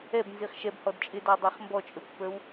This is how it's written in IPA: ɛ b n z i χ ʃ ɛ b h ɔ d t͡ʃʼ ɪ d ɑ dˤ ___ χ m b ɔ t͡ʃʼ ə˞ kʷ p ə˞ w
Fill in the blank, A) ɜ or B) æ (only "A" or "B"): B